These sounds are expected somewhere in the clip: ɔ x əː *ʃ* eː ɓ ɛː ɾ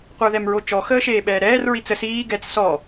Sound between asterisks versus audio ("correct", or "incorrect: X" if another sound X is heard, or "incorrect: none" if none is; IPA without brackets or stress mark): correct